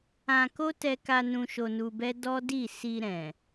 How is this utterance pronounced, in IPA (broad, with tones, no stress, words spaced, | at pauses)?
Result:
ã˧ko˦tɛ˧ka˧ nũ˧ ʃo˧nu˧bɛ˦ dɔ˦ di˦˨ si˧ ɾɛ̃˨